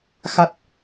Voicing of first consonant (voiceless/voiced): voiceless